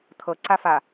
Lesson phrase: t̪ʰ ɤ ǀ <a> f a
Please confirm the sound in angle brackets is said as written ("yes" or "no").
yes